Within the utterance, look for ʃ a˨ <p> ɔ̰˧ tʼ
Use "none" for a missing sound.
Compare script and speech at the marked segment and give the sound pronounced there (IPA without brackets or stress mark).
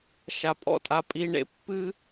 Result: pʼ